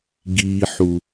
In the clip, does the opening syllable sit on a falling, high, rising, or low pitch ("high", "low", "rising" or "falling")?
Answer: low